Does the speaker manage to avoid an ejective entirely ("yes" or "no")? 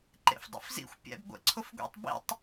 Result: yes